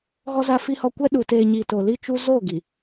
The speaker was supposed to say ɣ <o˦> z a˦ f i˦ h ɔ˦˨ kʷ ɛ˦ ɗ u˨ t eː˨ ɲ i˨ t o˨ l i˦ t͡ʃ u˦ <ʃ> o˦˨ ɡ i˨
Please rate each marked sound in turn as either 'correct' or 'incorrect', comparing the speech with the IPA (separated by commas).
incorrect, incorrect